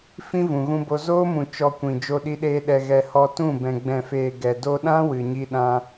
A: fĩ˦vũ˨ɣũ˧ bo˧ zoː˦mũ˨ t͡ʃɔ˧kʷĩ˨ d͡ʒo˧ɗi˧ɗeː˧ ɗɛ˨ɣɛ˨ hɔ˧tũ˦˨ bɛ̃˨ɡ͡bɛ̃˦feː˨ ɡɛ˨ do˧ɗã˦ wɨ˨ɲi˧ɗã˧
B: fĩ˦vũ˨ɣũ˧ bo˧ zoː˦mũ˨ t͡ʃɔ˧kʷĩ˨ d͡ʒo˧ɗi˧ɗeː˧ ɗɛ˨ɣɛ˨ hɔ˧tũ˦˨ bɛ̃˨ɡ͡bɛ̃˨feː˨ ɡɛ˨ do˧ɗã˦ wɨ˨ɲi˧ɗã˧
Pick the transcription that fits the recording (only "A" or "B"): B